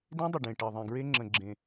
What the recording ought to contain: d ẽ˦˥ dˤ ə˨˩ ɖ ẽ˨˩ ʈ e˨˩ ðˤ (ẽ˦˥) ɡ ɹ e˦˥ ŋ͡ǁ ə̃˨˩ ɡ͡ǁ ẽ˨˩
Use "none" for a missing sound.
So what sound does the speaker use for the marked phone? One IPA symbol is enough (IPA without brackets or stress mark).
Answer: ẽ˨˩